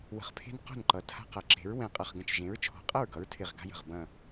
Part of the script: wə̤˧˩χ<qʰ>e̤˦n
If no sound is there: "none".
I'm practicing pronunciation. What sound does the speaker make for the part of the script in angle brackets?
pʰ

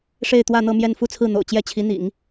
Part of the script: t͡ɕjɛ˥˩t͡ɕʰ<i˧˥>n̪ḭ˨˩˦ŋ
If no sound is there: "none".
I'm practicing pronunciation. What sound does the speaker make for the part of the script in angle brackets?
i˧˥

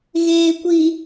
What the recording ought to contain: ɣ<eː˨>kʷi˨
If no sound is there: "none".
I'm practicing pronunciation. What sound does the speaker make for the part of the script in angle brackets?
eː˨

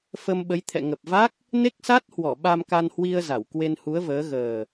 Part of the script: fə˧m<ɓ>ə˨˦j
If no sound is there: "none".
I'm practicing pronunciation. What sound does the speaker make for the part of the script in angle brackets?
ɓ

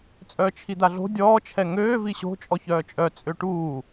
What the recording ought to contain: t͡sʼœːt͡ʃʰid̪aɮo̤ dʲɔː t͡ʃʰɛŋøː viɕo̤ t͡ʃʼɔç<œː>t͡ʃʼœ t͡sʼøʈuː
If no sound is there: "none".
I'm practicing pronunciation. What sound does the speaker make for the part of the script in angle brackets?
œː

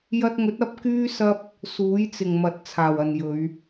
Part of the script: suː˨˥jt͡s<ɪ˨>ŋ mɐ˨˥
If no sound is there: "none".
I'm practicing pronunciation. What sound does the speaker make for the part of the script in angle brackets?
ɪ˨˩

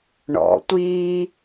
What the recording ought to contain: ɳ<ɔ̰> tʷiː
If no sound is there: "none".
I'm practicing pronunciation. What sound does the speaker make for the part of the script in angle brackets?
ɔ̰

